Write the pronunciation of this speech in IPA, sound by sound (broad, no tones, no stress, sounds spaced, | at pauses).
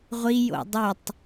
ʁʷ i j o̰ dˤ ʏ tˤ